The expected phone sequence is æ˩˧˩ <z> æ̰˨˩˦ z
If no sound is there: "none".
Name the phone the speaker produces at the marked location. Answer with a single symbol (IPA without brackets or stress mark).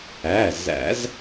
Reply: z